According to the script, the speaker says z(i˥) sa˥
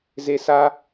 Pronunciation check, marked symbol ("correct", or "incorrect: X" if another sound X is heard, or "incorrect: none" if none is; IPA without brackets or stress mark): incorrect: e˥